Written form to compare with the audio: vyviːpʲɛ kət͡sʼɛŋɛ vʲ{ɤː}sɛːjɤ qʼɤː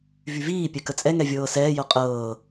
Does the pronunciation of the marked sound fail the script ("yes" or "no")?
no